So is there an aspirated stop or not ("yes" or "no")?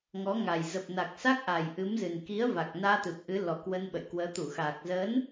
no